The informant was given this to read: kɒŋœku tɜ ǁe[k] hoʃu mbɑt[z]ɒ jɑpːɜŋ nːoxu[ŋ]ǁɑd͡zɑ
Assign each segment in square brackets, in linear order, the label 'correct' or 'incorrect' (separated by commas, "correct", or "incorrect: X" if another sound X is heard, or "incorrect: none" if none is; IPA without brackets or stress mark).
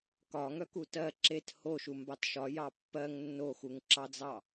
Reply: incorrect: t, incorrect: ʃ, correct